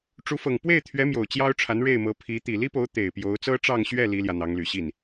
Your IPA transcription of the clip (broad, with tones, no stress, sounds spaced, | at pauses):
ʈ͡ʂ u˧˥ f ɤ˨˩ ŋ p w e˥˩ ɪ̯ t̪ʰ ɥ ɛ˧˥ m j o˨˩ ʊ̯ t͡ɕ j ɑ˥ ʊ̯ ʈ͡ʂʰ a˧˥ n ɻ e˥˩ ɪ̯ m ɤ˧˥ pʰ i˧˥ t̪ i˨˩ l i˥ p o˧˥ ʊ̯ t̪ e˨˩ ɪ̯ p j o˧˥ ʊ̯ t͡s ɤ˥ ʈ͡ʂ ɑ˥˧ ŋ ɕ ɥ ɛ˥˩ l i˥ l j ä˨ n̪ ɑ˧˥ ŋ l y˨˩ ɕ i˥˩ n